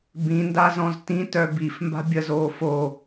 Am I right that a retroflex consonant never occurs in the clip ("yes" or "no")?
yes